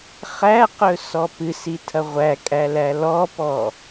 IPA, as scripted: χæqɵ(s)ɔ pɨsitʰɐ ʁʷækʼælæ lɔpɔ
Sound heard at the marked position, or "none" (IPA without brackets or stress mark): s